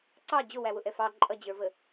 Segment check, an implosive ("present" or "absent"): absent